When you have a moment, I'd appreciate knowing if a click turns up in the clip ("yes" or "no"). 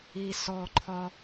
yes